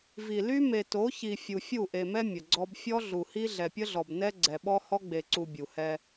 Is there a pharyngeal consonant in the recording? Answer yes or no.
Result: no